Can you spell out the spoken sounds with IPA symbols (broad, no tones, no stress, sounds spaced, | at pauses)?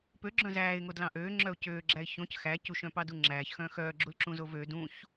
p ø ɡ͡ǁ œ̃ z æː ɪ̯ ŋ o d l ɑ̃ ʔ øː ŋ͡ǁ œ ʊ̯ c øː ɡ͡ǁ æ ɪ̯ ç õ c x æ c u ʃ œ̃ p ɑ d u ŋ͡ǁ æː ç x œ̃ x œː ɡ͡ǁ u l ǁ ũ z o v ø d ũ ç